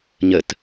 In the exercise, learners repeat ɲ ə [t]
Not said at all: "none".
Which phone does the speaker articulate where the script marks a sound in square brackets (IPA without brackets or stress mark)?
t